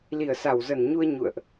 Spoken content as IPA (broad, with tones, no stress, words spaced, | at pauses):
li˧˩ə̯sa˧˩wzə˧˩nɲu˧ə̯ ɲṵ˧˨ə̯ʔ